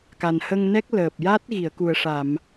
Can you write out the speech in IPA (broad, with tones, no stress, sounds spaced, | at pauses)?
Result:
k a˨˩ n h ə˧ ŋ n ɛ˦˥ k̚ l əː˨˩ p̚ j a˦˥ t̚ ɣ i˨˩˨ ə̯ k u˨˩ ə̯ ʂ a˨˩˨ m